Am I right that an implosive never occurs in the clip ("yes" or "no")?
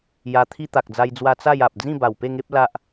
yes